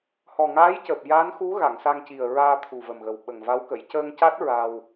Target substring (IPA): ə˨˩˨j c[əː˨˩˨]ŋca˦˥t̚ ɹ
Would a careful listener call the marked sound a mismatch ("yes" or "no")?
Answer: yes